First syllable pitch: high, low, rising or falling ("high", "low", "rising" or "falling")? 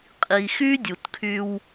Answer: low